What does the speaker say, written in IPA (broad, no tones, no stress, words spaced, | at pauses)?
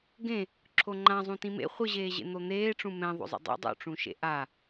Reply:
ɡẽ | ǁʰoŋ͡ǃãzˤũ tĩmḛ χʷɯʑeːʑḛ n̪on̪eːʈ͡ʂũ mɛ̃ ðˤo̰zˤḛdˤo̰ dˤo̰ʈ͡ʂũʃḛ ʔa